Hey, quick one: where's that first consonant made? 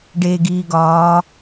retroflex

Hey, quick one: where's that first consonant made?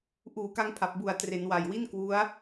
throat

